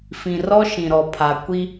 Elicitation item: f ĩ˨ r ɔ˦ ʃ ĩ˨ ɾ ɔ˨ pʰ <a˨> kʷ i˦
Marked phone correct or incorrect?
correct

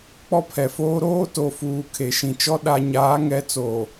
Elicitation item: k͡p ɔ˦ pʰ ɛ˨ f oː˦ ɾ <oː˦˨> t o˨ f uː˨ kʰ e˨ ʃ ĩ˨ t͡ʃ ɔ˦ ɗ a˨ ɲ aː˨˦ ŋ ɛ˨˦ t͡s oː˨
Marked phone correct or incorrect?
incorrect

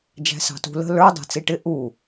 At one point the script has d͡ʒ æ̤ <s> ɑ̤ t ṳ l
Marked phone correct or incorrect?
correct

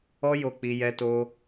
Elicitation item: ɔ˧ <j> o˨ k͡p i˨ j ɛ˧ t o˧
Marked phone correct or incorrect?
correct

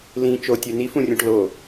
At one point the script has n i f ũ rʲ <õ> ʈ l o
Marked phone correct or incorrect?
correct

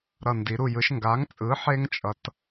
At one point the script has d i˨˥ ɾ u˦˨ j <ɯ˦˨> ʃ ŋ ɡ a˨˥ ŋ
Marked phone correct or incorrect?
incorrect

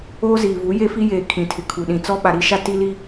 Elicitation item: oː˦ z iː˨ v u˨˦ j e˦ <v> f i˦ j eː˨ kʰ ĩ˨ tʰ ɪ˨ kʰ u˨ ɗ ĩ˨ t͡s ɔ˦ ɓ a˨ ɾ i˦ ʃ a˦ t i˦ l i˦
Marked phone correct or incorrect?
incorrect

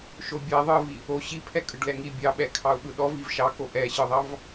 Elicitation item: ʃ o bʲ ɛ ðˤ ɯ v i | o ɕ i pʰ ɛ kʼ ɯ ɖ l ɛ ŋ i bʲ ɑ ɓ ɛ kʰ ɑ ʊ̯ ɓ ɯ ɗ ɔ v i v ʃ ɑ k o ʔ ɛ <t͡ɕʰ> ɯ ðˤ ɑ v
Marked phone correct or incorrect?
incorrect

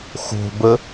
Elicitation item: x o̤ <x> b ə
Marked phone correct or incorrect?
incorrect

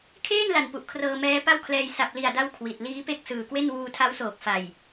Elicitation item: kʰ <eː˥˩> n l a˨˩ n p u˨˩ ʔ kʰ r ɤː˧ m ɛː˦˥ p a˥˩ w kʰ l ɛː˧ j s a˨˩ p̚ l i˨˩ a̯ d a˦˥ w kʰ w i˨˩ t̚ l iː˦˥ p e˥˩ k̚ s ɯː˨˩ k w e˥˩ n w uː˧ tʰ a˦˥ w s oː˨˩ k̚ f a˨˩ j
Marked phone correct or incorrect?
correct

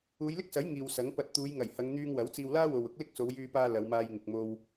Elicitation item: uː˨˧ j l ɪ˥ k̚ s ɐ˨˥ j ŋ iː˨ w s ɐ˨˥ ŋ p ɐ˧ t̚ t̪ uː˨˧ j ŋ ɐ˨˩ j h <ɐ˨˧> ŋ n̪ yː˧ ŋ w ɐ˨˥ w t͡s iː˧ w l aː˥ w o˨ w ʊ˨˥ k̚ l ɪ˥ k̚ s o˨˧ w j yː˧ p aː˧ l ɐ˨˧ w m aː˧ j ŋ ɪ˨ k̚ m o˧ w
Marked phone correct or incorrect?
correct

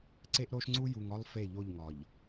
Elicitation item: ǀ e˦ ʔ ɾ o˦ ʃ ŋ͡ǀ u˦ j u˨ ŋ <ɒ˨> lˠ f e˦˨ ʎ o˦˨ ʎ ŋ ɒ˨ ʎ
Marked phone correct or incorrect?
incorrect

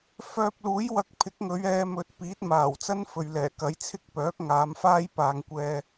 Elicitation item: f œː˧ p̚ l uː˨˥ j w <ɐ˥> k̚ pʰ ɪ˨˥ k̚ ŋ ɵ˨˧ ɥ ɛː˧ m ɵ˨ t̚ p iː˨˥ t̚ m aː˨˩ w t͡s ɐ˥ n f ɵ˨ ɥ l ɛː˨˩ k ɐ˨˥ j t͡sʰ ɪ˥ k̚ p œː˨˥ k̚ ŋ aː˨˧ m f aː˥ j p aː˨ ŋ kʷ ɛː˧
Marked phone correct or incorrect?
incorrect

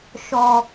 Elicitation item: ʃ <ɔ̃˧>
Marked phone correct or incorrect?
incorrect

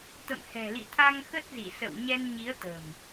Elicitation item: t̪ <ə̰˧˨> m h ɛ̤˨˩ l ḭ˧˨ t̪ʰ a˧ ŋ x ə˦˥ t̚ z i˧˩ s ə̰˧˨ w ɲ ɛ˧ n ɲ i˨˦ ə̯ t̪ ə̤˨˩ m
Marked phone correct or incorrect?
correct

